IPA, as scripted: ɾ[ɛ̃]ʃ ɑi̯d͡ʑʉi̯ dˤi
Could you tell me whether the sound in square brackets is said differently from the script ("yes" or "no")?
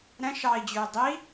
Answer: no